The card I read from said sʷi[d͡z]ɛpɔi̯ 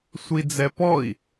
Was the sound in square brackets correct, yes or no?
yes